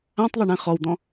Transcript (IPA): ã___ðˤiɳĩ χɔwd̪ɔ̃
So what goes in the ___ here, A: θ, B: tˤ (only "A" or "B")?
B